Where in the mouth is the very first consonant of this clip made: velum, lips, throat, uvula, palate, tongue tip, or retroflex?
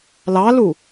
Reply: tongue tip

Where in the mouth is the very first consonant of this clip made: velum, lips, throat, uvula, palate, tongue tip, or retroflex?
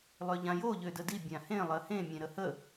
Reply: tongue tip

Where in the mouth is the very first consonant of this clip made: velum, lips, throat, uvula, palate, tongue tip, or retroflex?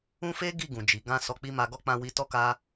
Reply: lips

